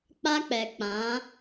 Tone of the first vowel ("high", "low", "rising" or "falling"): high